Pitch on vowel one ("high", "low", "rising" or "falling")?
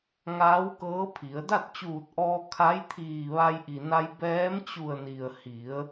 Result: rising